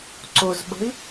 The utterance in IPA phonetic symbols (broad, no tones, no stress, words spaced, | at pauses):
ǀʊzɓə̤i̯